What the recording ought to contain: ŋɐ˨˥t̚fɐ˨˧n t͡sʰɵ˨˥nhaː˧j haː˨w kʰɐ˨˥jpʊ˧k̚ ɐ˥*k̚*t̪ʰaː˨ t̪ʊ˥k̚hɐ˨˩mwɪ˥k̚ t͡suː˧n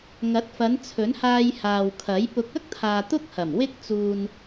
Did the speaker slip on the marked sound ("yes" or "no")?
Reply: no